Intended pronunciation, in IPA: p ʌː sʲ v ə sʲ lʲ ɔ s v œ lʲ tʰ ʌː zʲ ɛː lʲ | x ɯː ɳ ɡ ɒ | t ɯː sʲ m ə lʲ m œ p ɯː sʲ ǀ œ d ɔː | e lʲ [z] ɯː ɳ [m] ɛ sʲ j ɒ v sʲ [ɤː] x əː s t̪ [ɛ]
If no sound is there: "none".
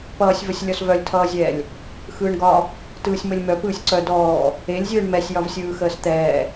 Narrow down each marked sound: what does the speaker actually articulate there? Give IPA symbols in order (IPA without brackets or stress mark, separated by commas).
zʲ, m, ɯː, ɛː